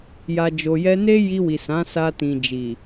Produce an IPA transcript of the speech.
j a˨ d͡ʒ o˨ j ɛ˧ n e˦ j i˧ w i˨ s ã˨˦ s a˧ t ĩ˨ d͡ʒ i˨

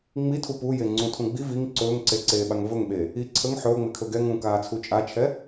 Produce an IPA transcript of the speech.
ŋ͡m i tʰ u p u j e ŋ͡ǀ ũ tʰ ũ ɡ͡b i v i ŋ ǀ ɵː ŋ ǀ e ǀ eː ɓ a ŋ v ɵ ŋ ɓ eː | i ǀʰ ə ŋ ħ ɵː ŋ͡m e kʰ ɵ ɡ ɛ ŋ ũ k aː t͡sʰ u t͡ʃʼ a t͡ʃʰ ɛ

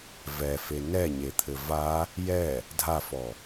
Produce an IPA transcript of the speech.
v ɛ f e n ɛ ɲ e t̪ʰ ɘ v a | j ɛ | dʱ a f ɔ

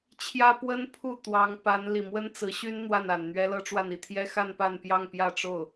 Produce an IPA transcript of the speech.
t͡ɕʰ j ä˥ p w ə˥ n pʰ u˥˩ t̪ w ɑ˧˥ ŋ p a˧˥ n l i˨˩ m w ə˥ n t͡s ɹ̩˧˥ ɕ y˥ n n̪ w a˥˩ n a˨˩ n n̪ ɥ ɛ˥ l ɤ˥ ʈ͡ʂ w a˥˧ n i˥˩ t̪ʰ j ɛ˥ x a˥˧ n p a˥˧ n p j ɑ˥˧ ŋ p j ä˥˧ ʈ͡ʂ o˥˩ ʊ̯

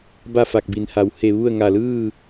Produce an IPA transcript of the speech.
b a˥˨ f a˧˩ k̚ b i˩˧ n h a˩˧ w h e˧˩ ʋ u˥˨ ə̯ ŋ a˧˩ l ɯː˥˨

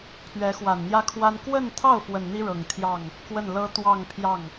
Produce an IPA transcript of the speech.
pʰ ɥ ɛ˧˥ x w a˨˩ n n̪ j ä˥ kʰ w a˥ n k w ə˥˧ n t̪ʰ ɑ˥˩ ʊ̯ f w ə˨˩ n n̪ i˥ ɻ ɤ˨˩ ŋ t̪ʰ j ɑ˥˩ ŋ | k w ə˥˩ n l ɤ˥ t̪ w ɑ˥˧ ŋ pʰ j ɑ˥˩ ŋ

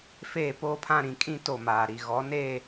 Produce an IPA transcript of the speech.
f eː˦˨ p oː˦ pʰ ã˦ ɾ ĩ˨ kʼ ĩ˦ t o˦˨ m aː˨ ɾ i˨ ɣ ɔ˨˦ n eː˦˨

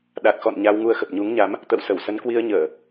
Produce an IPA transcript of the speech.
ɗ a˨˩ t̚ x ɔ̰˧˨ n ɲ a˧ w ŋ u˧ ə̯ x ə˨˩ p̚ ɲ u˨˦ ŋ ɲ a˨˦ m | t̪ ə̰˧˨ w s ə˧˩ w s ə˨˦ n k w i˧ ə̯ ɲ əː˧˩˨

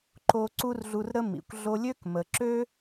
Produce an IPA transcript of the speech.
ǃ o˧ ǀ u˥ r ɮ u˧ r ɾ ə˥ m ḭ˩ kʷ ɮ o˧ lʲ ø˥ k m ə˩ ǁ ø˥

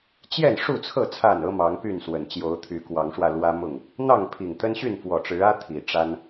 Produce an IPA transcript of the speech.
t͡ɕ j ɛ˥˨ n ʂ u˥˨ t͡sʰ ɤ˥˨ t͡sʰ a˥˨ n ɤ˦ m ɑ˨˦ ŋ p y˥˨ n s w ə˨˩ n t͡ɕ j o˨˦ ʊ̯ t̪ʰ y˨˦ k w ɑ˨˦ ŋ ʂ w ä˧ l w ä˦ m ʊ˥˨ ŋ | n̪ ɑ˥˨ ŋ pʰ i˨˩ ŋ t̪ ə˦ n ɕ y˥˨ n f w ɔ˨˩ ʈ͡ʂ ɻ̩˨˦ ä˦ t̪ʰ i˨˩ ʈ͡ʂ a˦ n

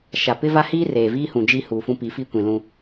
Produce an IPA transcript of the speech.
ʃ a˨ p ɪ˦ v a˦ h iː˦ r eː˨ v iː˦ h ũ˨ d͡ʒ i˦ h uː˨ f ũ˦ p i˨˦ f i˦ kʷ ĩ˨ l ũ˦

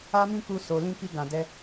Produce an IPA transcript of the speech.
a˦ m ĩ˦ k u˧ s o˨ l ĩ˧ k i˧ ɡ ã˨ d ɛ˧

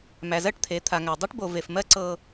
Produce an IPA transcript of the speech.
m æ˨ z ɜ˦ ʈ t̪ʰ e˨˦ t̪ʰ a˨ ŋ æ˨ dˤ e˦ ʈ b o˨ v e˨ f m ɜ˦ ǀ ɤ˦

